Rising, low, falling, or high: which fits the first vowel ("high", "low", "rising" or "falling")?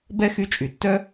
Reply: high